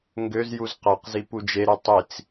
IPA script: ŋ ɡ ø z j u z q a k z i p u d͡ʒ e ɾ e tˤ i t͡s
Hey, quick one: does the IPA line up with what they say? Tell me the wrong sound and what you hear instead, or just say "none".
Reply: k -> q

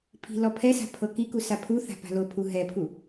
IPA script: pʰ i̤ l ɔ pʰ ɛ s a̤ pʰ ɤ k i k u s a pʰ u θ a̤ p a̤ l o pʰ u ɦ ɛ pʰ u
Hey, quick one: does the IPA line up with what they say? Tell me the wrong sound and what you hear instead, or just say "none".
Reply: none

